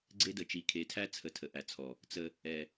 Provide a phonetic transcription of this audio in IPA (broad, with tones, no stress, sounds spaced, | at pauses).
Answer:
ɡ͡ǀ e˦ d ə˨ t͡ʃ i˨ kʰ e˨ tʰ æ˦ t͡sʰ ə˨ tʰ ə˨ ʔ æ˨ t͡sʰ ɔ˨ | t͡s ə˦ | ɛ˨